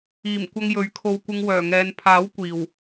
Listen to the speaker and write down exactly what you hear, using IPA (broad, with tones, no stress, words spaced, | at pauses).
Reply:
iː˨˩m kʷɐ˧ŋjɵ˨˥ɥkʰo˧wkʷɪ˧ŋ wœː˨˩ŋɛː˨n pʰaː˨˥w kʷiː˨˩w